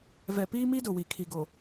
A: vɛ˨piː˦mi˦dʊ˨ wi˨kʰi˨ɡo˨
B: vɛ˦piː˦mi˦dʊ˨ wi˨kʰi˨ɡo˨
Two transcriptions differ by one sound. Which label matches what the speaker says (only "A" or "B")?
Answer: A